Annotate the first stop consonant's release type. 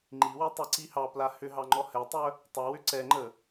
click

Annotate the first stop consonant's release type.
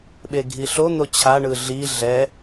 implosive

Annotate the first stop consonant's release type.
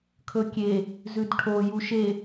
aspirated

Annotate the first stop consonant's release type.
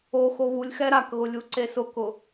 plain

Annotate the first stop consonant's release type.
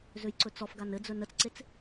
click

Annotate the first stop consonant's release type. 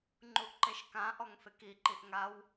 click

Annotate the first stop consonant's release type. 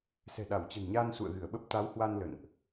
implosive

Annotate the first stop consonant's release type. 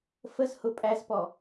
ejective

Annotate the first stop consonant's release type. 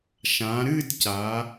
plain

